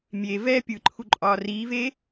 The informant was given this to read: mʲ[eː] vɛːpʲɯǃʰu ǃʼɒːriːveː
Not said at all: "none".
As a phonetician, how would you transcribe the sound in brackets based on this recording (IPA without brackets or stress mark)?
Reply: e